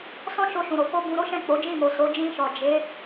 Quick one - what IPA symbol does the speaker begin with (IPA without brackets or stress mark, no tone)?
s